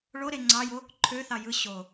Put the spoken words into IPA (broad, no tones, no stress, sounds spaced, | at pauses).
ɭ o ɾ e ŋ͡ǀ ɑ j o | ǃʰ ø θ ɑ j ɯ ɕ o